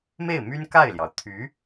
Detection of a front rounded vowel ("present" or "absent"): present